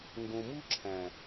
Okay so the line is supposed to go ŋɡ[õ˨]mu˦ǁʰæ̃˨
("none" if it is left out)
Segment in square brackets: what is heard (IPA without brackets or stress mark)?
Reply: õ˨